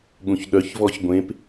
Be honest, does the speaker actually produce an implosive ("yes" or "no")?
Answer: yes